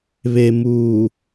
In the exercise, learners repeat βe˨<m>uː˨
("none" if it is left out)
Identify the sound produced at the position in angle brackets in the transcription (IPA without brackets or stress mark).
m